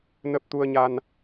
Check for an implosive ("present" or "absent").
absent